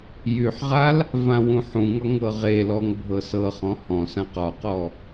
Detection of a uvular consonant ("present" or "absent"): present